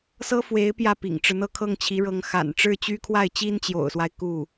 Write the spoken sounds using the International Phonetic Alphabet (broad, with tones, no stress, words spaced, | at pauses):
sɤ˥fwe˧˥ɪ̯ pjä˥˩pḭ˨˩ŋʈ͡ʂɻ̩˦n̪ɤ˥˧ kʰɤ˥˩ŋt͡ɕʰi˧˥ɻɤ˧˥ŋ xa̰˨˩n ʈ͡ʂɻ̩˥˩t͡ɕy˥kʰwa˥˩ɪ̯ t͡ɕi˥nt͡ɕjo̰˨˩ʊ̯swa˦ɪ̯ ku˥˩